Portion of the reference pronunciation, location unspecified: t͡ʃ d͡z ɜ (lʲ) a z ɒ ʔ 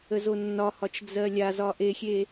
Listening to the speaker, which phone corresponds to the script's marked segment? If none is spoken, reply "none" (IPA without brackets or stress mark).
lʲ